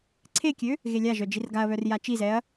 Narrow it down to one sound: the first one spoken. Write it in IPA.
ǀʰ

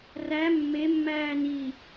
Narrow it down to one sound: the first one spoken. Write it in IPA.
r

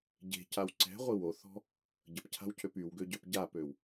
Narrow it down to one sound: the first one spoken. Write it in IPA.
ɟ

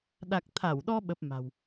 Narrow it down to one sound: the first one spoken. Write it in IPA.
ɗ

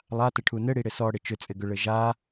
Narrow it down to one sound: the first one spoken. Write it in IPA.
lˠ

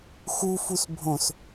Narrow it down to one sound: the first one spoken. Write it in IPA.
x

